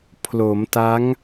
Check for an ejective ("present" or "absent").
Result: absent